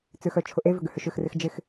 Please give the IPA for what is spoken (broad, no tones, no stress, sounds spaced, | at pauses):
t͡s ʏ x œ t͡ʃʰ ʊ ʔ e v ʏ ɡ ʏ h ʏ ʃ ʏ x r ɪ x d͡ʒ ɪ x